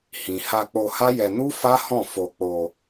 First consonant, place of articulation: glottal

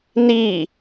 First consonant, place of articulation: alveolar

